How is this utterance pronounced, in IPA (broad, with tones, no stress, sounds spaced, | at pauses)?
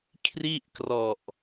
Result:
kʰ r i˥˩ ʔ k r ɔ˨˩ ʔ